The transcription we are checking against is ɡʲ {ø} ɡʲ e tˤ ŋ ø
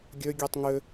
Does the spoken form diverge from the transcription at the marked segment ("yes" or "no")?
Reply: no